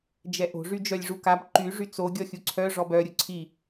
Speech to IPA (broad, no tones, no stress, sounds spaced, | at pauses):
d͡ʒ ɛ ʔ o̤ ʐ y d͡ʒ œ lʲ ʐ u k a b ǃ y ʐ y t͡s o ɡʲ ɔ xʲ u ǀʰ œ ʐ ɔ b œ ɾʲ u ǀʰ i